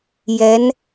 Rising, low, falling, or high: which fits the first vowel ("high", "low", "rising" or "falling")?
rising